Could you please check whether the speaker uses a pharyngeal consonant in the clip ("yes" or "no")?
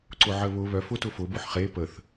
yes